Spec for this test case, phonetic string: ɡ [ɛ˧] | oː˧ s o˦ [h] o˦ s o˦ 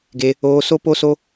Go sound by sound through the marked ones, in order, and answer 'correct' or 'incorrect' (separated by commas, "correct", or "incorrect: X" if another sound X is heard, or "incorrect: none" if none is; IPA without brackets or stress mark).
incorrect: e˧, incorrect: p